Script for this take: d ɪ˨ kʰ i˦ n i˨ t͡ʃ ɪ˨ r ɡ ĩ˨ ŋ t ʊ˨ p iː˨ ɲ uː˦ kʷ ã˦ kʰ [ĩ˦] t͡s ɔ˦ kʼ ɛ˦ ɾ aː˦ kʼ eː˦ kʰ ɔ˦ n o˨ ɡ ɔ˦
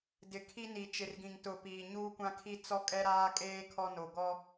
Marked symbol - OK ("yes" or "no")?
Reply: no